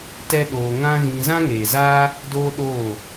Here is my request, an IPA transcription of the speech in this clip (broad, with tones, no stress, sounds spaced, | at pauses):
t ɛ˦ ɗ oː˧ ŋ ã˦ ɣ ĩ˧ z ã˦ ŋ eː˨ z aː˦ | d oː˦ ɗ oː˦˨